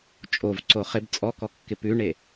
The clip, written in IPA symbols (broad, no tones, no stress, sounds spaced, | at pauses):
t͡ʃʼ o v ǀ o χ ɪ b t͡sʼ ɔ k ɔ kː ɪ p ʉ ɳ e